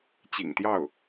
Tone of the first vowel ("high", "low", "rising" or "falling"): low